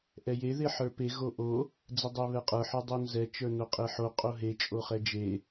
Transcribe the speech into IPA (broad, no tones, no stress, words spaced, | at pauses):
ʔɛje ðeħə˞pe ɣoʔo | d͡zɛdˤɛβɛqʼə˞ ħə˞dˤonzɛ t͡ʃə˞noqʼeħo qʼoɦe t͡ʃʼoχɛd͡ʒe